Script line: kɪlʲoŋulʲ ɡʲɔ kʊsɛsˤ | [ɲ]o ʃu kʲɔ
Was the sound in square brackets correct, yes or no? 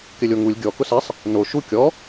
no